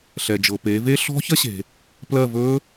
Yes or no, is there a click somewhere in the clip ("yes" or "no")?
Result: no